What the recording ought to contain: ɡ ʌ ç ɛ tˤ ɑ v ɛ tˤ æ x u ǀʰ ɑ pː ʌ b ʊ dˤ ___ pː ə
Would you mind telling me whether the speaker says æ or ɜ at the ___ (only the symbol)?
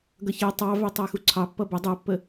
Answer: ɜ